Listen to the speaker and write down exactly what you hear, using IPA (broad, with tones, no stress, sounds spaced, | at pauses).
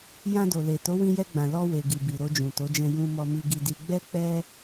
j ã˧ d o˨ l e˨ t o˨˦ w ĩ˧ j ɛ˧ ɡ͡b ã˨ l ɔ˧ w e˨ ɡ i˨ b i˨ ɾ o˧ d͡ʒ ũ˨ t o˨˦ d͡ʒ ɛ̃˧ j ũ˨ m ɔ˨ m i˨ ɡ i˨ d i˨ ɡ͡b ɛ˧ k͡p ɛ˧